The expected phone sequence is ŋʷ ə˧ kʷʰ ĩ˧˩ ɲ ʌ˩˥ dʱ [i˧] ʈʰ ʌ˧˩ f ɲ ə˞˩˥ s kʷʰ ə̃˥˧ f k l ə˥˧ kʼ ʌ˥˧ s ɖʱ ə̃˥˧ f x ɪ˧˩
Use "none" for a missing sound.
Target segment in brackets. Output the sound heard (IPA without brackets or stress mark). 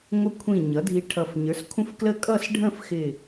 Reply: i˧